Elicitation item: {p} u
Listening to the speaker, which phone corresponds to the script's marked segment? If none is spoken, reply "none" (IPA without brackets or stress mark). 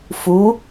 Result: f